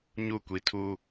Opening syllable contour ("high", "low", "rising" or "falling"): falling